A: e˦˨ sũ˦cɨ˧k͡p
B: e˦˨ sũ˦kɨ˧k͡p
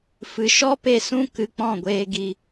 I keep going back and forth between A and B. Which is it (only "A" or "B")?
B